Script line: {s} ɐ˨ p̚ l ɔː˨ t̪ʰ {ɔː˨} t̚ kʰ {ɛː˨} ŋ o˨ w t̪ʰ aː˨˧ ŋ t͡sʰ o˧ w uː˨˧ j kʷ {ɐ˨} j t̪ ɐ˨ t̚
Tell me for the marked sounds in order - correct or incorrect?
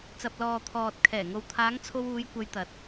incorrect: t͡s, correct, incorrect: ɛː˨˩, incorrect: ɐ˨˧

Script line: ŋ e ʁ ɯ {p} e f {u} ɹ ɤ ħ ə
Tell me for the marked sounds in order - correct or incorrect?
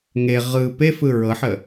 correct, incorrect: ɯ

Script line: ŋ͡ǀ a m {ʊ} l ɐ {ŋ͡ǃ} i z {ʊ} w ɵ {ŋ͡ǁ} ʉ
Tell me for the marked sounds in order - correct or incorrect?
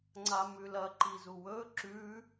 incorrect: ʉ, incorrect: ǃ, incorrect: u, incorrect: ǁ

